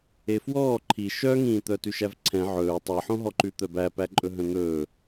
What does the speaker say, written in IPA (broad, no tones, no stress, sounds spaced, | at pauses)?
e f w ɔː ǃʰ i ʃ œ ŋ ĩː t̪ œ t ʉ ʃ æ v ǀʰ ɛ̃ ʕ ɵː tˤ e ħ õ ɦ ɔ ǃ ʉ t̪ œ b æ p æ ǃʼ ɵ ɦ œ̃ n̪ ɵː